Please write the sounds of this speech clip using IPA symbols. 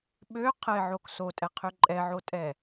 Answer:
ɓø qʰəɪ̯ʕok sotʼɛqʰø ǃʼɛʕotʼɛ

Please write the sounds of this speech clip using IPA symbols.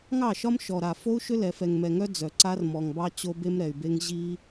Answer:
ŋɑ˦˨ʃɒ˦m ʃɔ˨ɾa˨ fo˦u̯ʃʏ˦lɛ˨fɛ˨ŋ mɛ˨ŋœ˦ d͡zœ˨ǀa˦r mɔ˨ŋbɑ˦ t͡ɕo˦be˦mɾɛ˨y̯be˦ŋ ʑi˦

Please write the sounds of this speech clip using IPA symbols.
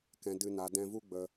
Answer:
kɛ̃˨ dɨ˨na˨ dɛ̃˧vu˦ɡ͡bə˧

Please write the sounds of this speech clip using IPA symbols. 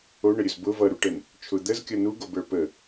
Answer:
oɳəɾʲɵz bʊ vʌɾuʈɛn | t͡ʃʰʊ d̪əzkʲʌ nuɡobə˞ pə

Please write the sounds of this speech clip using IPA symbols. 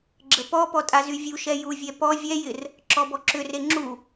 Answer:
ɡ͡ǁəpɔpɔ tʼazyvʲuʃɛ juvʲɛ pɔ vʲɛjɪr | ǁɔbɔǁʏre ŋ͡ǁu

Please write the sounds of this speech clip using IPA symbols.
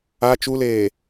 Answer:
a t͡ʃuleː

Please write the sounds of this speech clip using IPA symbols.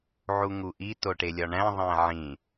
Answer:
ʕuŋuʔi toʈelʲɒɳæ̃ ðˤæ̃ʕĩ

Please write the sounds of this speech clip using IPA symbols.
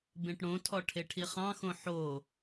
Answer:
bẽʈɽõtʰɔ ʈʰeʈʰiχɑ̃xõ ħo

